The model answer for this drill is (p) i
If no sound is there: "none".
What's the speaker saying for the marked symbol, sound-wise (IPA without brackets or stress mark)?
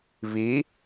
β